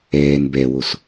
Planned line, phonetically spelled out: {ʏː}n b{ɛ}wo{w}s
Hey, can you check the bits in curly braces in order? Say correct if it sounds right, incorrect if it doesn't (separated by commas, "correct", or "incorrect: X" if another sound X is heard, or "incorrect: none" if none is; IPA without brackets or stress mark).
incorrect: ɛː, correct, incorrect: none